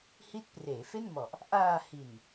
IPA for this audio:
h i˦˥ t̚ p r eː˩˦ f e˥˩ n m ɔ˨˩ ʔ | ʔ aː˧ h i˨˩ n

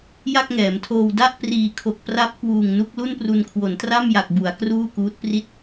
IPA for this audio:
j a˥˩ k̚ ŋ ɛː˩˦ m tʰ oː˧ w d a˥˩ ʔ p r iː˨˩ kʰ o˨˩ k̚ p r a˦˥ p̚ k w uː˨˩ ŋ n u˥˩ k̚ l u˥˩ n p r u˧ n kʰ w o˩˦ n t r a˥˩ m j a˨˩ k̚ b u˩˦ a̯ k r uː˥˩ k uː˦˥ t̚ p r i˥˩ t̚

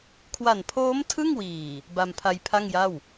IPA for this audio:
kʰ w a˨˩ n pʰ oː˦˥ m tʰ ɯ˥˩ ŋ w iː˨˩ | b a˧ m pʰ a˧ j pʰ a˥˩ ŋ j a˥˩ w

